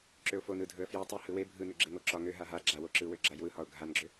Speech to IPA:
ǁøʊ̯fo nɯdʱɵə̯ fjɵ tˤɯ hɯwe bʱɯnɵ ɡ͡ǁeŋoǁɒ ŋø ɦaɦa ɡ͡ǁa woǁɯwø ɡ͡ǁajwɯhɒʊ̯ ɡʱanɡ͡ǁø

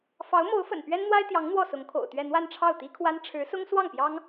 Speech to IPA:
fɑ˧˥ʊ̯mo˧˥ʊ̯fə̰˨˩n pɥɛ˥nn̪wa˥ɪ̯t̪jɑ˧˥ŋ n̪wɔ˥˩sʊ˧˥ŋkʰo̰˨˩ʊ̯t̪ɥɛ˥˧ n̪wa˥˧nʈ͡ʂʰɑ˥˩ʊ̯t̪i˥kʰwa˥n ʈ͡ʂʰɻ̩˧˥sʊ˥ŋ swɑ˥˩ŋpjɑ˥ŋ

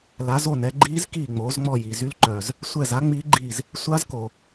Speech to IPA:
la˨˦zo˦˨nɛ˨˦ɡ͡ǃiː˦˥z kiː˦˨ŋ͡moː˨˦zŋ͡mɔː˦˨ji˦˨ zy˦˥lǃœ˨z | sʷɛ˦˨z a˦˥ ŋ͡miː˦˥ɡ͡ǃi˦˨z | sʷa˦˥zko˨

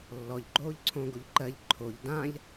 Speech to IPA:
lːɔʎ ɡ͡ǃoːʎǀʰõ ɡoʎǃɜʎ ǃʰoʎ dãʎ

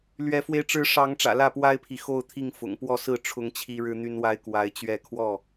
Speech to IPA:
lɥɛ˨˦fwe˧ɪ̯ ʈ͡ʂɻ̩˨˦ ʂɑ˨˦ŋʈ͡ʂä̰˨˩ lä˥˨pwa˦ɪ̯pʰi˨ xo˥˨ʊ̯t̪ʰi˥˨ŋ fʊ̰˨˩ŋpwɔ˥˨ sɹ̩˥˨ ʈ͡ʂʰʊ˦ŋt͡ɕʰi˦ɻɻ̩˦ n̪y˦nwa˦ɪ̯ kwa˨˦ɪ̯t͡ɕɥɛ˥˨ kʰwɔ˥˨

